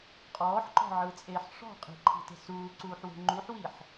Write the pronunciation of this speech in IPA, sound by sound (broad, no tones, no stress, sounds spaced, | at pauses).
qʼ ɔː ħ ǃ ɔ̤ ʕ ɯ t͡sʼ eː ħ ʂ ɔ̤ qʼ i̤ ǃʰ i̤ t e̤ s uː ǀ uː ħ w e̤ ŋ͡ǃ u ħ w i ħ